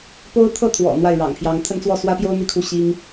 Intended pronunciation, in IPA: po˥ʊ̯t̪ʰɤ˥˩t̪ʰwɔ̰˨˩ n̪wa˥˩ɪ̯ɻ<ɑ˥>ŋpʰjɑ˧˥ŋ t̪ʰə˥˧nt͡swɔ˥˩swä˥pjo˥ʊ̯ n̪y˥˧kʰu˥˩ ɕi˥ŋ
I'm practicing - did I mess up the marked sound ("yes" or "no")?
yes